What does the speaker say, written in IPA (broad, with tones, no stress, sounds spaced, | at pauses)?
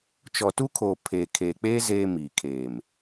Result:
t͡ʃ ɔ˨ t u˦ kʰ oː˨ pʰ eː˨ kʰ eː˨ k͡p eː˦ z eː˦ m iː˨ kʰ eː˨ m